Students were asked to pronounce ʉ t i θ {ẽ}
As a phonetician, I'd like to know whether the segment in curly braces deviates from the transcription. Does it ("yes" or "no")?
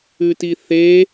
yes